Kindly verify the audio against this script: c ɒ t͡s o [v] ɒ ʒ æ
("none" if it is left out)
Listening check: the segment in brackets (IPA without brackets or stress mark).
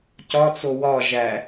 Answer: w